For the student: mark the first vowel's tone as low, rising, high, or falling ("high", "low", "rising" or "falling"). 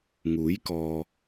rising